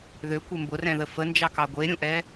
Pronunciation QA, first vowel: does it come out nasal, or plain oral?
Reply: oral